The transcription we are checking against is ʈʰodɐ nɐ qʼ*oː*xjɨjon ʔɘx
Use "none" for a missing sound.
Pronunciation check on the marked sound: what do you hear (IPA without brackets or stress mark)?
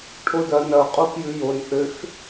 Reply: o